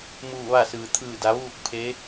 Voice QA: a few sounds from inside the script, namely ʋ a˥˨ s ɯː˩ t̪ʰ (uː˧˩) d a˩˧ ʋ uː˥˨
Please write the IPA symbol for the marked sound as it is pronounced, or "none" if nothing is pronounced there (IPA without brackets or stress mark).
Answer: ɯː˧˩